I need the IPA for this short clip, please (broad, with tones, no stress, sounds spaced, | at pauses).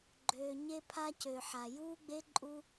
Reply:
ɡ͡ǃ øː˨ ɲ e˧ pʰ a˧ c ø˨ ħ a˨ j uː˦ ɡ͡b e˦ ǃʼ u˦